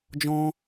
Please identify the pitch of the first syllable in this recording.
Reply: high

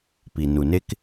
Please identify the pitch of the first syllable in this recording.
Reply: low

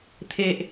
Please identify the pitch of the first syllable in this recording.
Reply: low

